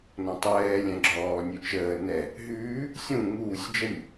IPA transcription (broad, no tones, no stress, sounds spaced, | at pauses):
n ɔ̃ tˤ ɛː lʲ ɛ̃ ɡ͡ǁ ɔː nʲ ʉ t͡ʃ əː n ɛ | ɦ ʉː | sʲ ũ ŋ uː sʲ d͡ʒ ə nʲ